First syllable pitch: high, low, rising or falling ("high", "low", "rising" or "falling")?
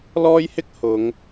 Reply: high